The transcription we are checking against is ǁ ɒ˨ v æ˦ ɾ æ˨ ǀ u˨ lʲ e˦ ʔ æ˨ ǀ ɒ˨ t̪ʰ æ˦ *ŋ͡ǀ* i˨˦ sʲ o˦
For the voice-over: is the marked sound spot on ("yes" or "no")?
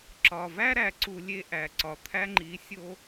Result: no